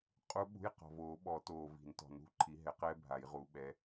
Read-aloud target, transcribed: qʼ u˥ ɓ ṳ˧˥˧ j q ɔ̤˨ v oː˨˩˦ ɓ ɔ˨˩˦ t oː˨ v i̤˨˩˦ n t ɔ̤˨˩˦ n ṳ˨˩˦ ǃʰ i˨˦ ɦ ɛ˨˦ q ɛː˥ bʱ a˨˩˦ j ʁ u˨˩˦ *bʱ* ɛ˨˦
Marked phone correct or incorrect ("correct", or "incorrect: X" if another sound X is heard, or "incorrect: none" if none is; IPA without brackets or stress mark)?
incorrect: ɓ